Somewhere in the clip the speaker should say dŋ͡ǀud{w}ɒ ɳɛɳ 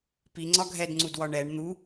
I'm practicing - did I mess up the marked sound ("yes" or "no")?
no